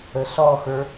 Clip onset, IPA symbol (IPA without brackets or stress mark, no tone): ə